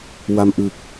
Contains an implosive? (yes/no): no